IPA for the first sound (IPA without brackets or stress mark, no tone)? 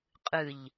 qʼ